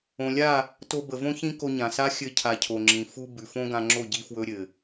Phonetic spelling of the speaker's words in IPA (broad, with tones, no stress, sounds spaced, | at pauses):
õ˨ lʲ a˦˨ | t o˧ b ə˨ v õ˦ ç ĩ˦ k o˧ ɲ ã˨ s a˦ xʲ ɘ˧ cʰ a˨ cʰ o˨ ŋ͡ǁ ĩ˨ f u˧ b ʉ˨ f õ˦ ɡ ã˧ ŋ͡ǁ o˦˨ ɟ i˧ f w ɵ˧ ɾʲ ɘ˨